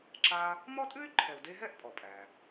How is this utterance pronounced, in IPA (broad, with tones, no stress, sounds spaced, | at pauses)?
ǁ a˦ | m ɔ˥ tʼ ʉ˥ y̯ ǃʰ ɛ˨ u̯ d e˦ ɦ ɛ˥ ʔ pʼ ɔ˩ pʼ æ˩